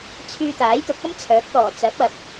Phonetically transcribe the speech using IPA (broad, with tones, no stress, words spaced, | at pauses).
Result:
t͡sʰyː˧t̪aː˨˥jt̪ʊ˨˥k̚ɐ˥m t͡sʰœː˨˥k̚t̪ɔː˨˩ t͡sɐ˨˥p̚ɐ˨p̚